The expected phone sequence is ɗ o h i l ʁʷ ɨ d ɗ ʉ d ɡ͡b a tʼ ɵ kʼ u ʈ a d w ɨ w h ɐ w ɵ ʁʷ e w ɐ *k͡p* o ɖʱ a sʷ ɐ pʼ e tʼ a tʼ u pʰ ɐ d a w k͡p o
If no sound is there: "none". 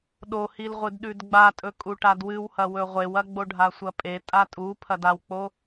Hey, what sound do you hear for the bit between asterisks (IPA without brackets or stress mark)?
ɡ͡b